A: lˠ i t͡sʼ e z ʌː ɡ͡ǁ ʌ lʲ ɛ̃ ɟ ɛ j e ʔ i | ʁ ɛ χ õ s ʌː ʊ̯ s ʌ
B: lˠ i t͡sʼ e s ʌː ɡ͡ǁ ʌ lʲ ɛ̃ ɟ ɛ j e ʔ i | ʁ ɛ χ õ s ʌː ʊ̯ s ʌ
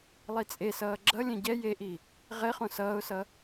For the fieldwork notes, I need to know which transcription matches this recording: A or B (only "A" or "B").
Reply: B